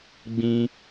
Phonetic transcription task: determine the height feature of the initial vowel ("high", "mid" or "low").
high